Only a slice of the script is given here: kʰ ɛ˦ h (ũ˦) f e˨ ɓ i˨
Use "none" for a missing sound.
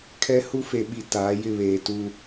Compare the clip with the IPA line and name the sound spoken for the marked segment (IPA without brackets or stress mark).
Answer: u˦